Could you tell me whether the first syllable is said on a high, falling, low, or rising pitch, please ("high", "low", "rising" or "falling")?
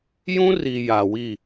high